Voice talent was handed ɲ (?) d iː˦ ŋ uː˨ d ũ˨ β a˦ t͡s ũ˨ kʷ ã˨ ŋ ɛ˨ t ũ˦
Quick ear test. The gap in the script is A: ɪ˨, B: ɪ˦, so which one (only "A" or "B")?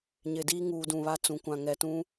A